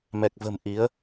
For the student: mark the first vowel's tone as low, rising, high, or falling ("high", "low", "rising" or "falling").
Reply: low